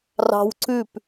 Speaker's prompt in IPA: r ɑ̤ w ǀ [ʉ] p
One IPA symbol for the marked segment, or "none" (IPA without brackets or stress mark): ʉ